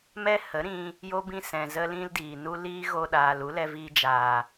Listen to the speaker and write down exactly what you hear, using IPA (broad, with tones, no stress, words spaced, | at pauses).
mɛ˦hə˨˦ ɾĩ˧ | jo˦bĩ˦sɛ̃˨ zə˦lĩ˦ldiː˨nu˦ liː˦ɣo˧ɗaː˨l u˨˦lɛ˧viː˧ d͡ʒaː˨